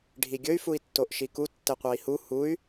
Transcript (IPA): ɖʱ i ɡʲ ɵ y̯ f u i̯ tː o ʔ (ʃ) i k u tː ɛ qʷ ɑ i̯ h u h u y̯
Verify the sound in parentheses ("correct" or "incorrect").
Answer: correct